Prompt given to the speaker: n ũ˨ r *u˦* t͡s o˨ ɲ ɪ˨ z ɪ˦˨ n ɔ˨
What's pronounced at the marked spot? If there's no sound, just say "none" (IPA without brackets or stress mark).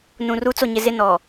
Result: u˦